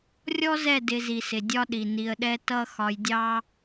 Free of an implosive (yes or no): no